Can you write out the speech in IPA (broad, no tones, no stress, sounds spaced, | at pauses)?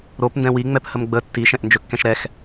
ɾ o p n d ɛ̃ w i ŋ͡m ɛ p h ə m ɡ͡b ə tː i ʃ ɛ̃ ʔ n d͡ʒ ɵ kː ɛ̃ ʃ ɾ ɛ x